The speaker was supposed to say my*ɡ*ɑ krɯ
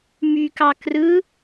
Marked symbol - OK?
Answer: no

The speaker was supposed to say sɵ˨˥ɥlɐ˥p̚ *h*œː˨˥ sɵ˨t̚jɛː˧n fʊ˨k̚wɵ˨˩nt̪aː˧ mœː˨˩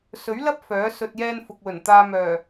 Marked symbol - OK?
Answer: no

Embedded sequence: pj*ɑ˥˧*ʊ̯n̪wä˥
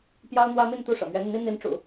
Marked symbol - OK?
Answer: no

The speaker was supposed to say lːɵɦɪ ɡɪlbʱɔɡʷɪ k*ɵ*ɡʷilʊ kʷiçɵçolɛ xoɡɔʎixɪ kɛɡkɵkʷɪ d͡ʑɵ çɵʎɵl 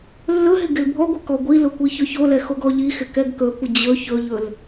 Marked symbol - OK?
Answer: no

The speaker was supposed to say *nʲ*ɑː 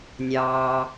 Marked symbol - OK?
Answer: yes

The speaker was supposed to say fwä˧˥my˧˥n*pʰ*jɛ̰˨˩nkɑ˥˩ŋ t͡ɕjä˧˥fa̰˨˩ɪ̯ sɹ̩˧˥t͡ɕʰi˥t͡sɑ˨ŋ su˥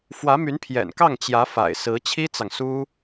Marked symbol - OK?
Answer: yes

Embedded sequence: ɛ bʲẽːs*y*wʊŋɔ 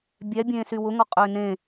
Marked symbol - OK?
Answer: yes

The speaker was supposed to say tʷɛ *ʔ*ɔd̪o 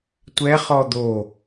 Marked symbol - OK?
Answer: no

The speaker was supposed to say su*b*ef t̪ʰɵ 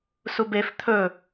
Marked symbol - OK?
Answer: yes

